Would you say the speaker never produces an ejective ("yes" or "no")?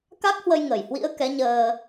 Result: yes